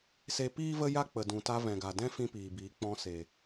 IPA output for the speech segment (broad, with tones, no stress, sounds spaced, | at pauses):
s e˧ p iː˦ v ə˦ j a˦ k͡p ə˨ d ũ˨ t a˧ v ɛ̃˨ ɡ a˨ d ɛ̃˦ f ĩ˦ p iː˨ b iː˨˦ k͡p ɔ̃˧ s e˨